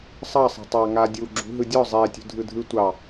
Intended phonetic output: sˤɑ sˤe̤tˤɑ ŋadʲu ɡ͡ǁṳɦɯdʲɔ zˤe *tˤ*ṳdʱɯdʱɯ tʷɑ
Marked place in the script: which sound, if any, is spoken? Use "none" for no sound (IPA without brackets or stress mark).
tʲ